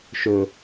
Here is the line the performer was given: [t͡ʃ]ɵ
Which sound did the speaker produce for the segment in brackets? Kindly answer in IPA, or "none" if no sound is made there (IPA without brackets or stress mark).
ʃ